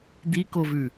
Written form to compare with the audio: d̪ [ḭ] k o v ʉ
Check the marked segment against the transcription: incorrect: i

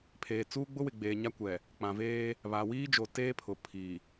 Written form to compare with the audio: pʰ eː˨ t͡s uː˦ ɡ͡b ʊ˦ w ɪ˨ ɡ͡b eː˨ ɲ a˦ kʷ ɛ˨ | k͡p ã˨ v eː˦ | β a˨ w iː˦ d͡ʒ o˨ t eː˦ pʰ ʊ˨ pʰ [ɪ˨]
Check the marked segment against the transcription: incorrect: i˨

